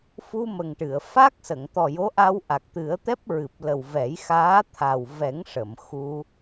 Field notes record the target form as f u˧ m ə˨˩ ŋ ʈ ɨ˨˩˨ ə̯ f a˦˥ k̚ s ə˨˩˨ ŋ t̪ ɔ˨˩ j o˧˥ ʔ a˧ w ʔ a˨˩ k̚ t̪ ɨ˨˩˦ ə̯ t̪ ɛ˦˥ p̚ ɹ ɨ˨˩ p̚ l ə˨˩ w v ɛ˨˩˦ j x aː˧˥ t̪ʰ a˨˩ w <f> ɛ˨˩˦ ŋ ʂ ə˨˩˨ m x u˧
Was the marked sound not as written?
yes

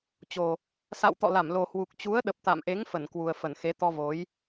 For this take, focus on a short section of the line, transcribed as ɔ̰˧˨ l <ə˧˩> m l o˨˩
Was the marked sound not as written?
yes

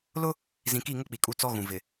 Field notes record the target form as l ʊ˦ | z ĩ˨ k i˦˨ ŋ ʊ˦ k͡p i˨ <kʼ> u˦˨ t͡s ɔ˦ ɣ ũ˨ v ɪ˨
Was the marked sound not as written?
no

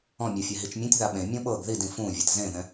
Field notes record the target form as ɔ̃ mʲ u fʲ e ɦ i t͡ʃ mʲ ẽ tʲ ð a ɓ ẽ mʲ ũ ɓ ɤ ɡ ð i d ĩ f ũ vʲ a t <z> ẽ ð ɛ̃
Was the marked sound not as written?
no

